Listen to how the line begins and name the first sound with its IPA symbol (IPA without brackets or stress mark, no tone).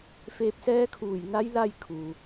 f